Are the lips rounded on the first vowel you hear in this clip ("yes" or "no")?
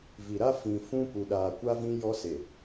no